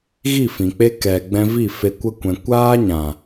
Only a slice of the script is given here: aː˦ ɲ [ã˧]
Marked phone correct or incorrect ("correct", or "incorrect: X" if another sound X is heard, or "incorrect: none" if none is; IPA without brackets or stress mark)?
incorrect: ã˨